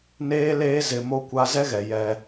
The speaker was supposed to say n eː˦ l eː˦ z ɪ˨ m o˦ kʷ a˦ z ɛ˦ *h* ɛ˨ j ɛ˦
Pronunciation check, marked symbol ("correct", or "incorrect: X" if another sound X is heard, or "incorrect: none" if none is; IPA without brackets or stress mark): incorrect: ɣ